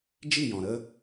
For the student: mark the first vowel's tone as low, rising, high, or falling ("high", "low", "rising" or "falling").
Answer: falling